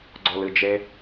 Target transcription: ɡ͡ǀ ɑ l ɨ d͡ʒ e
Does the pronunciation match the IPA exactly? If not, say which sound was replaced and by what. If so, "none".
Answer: ɑ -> ɔ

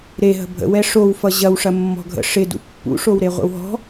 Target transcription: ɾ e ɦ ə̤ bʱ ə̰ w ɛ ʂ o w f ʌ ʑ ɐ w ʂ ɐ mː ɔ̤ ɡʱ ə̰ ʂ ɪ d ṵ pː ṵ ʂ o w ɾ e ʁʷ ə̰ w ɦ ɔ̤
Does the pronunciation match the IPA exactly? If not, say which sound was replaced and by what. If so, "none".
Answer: none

